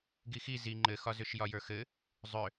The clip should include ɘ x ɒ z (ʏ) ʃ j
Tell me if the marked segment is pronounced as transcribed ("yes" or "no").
yes